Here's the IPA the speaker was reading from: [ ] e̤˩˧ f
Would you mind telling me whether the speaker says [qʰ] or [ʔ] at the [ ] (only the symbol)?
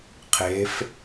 qʰ